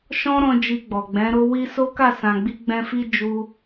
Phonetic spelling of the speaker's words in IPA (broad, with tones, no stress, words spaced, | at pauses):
ʃɔ̃˦ɾɔ̃˧ d͡ʒi˧ɡ͡bɔ˨ɡ͡bɛ̃˨˦ ɾo˧ wi˦ so˦ka˦˨sã˨ ɡ͡bi˧ɡ͡bɛ̃˧fi˧ d͡ʒu˦